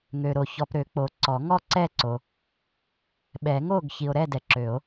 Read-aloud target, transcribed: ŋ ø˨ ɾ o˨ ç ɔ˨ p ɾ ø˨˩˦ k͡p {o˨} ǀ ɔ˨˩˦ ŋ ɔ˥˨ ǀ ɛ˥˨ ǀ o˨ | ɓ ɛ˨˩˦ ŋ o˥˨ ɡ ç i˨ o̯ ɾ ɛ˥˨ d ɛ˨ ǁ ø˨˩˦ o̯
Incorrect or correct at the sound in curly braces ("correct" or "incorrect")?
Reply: correct